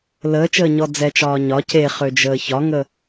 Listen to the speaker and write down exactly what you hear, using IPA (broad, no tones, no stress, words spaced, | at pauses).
ləːt͡ʃəːɲɔ d͡zɛt͡ʃɒː ɲɒ ceχød͡ʒəː çɒŋə